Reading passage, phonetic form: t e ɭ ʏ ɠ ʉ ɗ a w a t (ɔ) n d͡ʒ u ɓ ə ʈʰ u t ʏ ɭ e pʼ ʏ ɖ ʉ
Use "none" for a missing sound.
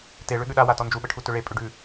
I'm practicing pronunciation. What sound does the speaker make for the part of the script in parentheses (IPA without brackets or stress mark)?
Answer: ɔ